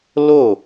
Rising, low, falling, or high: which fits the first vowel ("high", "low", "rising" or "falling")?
falling